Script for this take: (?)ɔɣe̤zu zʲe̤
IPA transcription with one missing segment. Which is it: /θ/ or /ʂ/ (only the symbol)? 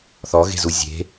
θ